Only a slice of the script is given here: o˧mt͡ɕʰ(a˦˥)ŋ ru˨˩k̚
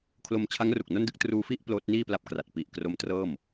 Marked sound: correct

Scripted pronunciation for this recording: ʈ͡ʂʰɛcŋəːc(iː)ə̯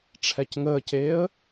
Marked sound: incorrect: eː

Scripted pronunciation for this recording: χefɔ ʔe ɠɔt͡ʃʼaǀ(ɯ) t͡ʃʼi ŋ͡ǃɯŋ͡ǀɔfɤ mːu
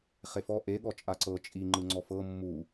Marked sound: incorrect: ɤ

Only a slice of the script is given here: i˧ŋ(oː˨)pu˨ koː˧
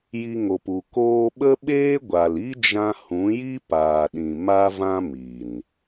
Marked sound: incorrect: o˨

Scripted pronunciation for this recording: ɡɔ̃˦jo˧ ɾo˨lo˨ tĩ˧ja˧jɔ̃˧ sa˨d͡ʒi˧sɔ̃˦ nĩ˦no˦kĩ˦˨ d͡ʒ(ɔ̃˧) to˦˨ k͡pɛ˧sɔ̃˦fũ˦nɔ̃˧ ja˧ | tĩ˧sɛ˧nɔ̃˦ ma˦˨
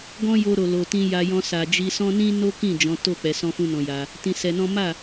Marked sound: incorrect: ɔ̃˨˦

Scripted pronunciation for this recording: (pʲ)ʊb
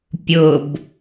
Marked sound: correct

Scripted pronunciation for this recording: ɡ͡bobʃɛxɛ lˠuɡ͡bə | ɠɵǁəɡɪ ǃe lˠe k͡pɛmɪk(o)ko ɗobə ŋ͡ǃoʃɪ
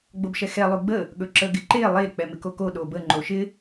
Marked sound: correct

